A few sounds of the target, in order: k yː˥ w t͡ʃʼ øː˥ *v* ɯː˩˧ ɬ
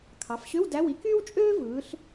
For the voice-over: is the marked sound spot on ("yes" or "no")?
yes